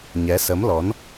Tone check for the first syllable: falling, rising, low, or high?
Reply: rising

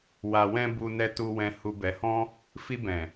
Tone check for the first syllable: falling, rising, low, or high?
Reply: low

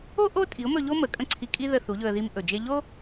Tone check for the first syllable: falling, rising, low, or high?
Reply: high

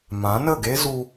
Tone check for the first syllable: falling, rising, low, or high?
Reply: rising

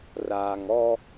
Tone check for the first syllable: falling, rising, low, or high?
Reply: low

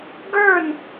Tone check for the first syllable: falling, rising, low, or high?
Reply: falling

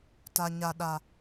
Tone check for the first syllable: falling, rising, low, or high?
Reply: low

